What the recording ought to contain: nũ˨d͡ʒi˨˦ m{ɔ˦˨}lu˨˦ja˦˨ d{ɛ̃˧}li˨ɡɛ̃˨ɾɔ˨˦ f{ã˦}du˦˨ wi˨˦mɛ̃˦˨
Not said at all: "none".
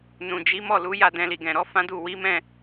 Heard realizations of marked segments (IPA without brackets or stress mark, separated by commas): ɔ˦˨, ɛ̃˧, ã˦